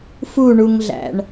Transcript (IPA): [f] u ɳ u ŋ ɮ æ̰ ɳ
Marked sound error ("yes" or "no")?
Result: no